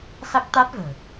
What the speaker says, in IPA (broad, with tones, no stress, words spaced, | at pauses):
sa˦˥k̚t̪a˦˥t̚və̤ː˨˩